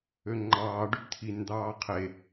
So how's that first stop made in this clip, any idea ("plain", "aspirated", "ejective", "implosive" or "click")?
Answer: click